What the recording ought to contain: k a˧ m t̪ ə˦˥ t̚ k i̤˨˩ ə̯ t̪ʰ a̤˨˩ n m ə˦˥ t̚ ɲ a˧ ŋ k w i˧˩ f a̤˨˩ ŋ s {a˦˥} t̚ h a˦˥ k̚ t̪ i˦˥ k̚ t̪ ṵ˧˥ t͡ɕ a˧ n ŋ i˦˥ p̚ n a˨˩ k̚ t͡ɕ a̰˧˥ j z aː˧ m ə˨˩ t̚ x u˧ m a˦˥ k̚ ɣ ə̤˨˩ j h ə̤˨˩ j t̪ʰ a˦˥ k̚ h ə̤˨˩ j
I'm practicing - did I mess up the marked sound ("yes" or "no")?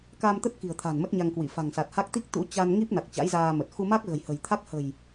yes